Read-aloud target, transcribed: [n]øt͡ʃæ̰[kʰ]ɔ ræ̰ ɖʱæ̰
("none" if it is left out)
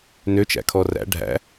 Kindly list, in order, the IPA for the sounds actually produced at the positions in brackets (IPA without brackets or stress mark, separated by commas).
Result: n, kʰ